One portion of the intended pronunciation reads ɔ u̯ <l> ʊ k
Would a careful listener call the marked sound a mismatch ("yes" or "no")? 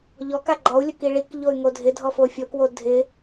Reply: yes